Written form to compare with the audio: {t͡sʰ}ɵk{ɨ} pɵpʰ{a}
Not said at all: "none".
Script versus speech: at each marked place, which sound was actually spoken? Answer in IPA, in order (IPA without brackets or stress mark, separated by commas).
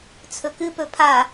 t͡sʰ, ɨ, a